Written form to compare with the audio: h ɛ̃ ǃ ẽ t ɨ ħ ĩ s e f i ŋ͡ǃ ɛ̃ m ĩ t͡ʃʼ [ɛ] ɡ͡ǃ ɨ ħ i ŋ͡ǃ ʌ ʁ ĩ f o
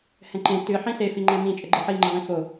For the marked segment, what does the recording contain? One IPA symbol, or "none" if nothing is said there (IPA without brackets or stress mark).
ə